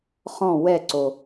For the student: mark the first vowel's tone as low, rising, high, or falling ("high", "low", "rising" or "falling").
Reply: falling